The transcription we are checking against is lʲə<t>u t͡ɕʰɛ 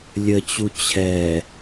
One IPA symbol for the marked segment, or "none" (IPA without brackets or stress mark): t͡ɕ